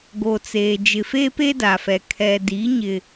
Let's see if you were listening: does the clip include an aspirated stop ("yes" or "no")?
yes